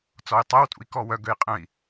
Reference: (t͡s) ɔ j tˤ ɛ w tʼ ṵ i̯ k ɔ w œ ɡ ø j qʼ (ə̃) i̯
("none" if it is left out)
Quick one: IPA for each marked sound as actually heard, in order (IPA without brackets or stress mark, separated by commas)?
t͡s, ə̃